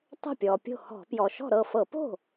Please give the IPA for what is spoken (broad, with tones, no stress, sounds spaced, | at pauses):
tˤ ə̤˥˩ pʲ ɔ˩ pʲ o̤˥˩ h ɔ̤˧˩˧ p j ɔ˩ ʃ ɔ̤˥˩ ɾ ɤ˥˩ f ɤ˧˩˧ p o̤˥˩